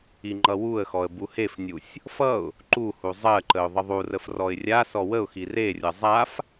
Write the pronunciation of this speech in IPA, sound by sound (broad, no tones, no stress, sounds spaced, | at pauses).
i ŋ͡ǃ ʌ w u ə̯ x ɔ ə̯ b u h e f nʲ u sʲ | f ʌ ʊ̯ | ǃ u h u zˤ ɜ ǃ ə ʊ̯ ðˤ ə ðˤ u r ə f r ɔ ɪ̯ rʲ a s ɔ w ə ʊ̯ x i r e rʲ ʌ zˤ a f